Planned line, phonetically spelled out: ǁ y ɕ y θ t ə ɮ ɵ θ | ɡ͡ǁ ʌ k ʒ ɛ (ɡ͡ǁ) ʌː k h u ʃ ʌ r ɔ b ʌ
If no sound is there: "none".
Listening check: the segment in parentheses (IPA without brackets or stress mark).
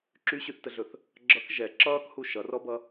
ǁ